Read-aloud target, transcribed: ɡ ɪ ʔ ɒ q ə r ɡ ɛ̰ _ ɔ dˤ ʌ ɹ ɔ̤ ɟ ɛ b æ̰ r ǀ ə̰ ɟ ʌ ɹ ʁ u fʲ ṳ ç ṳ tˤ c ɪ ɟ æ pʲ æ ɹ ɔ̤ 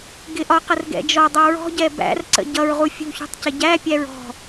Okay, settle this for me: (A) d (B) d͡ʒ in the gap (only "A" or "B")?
B